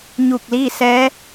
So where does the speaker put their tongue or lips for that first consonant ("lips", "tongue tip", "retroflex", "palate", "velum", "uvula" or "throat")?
palate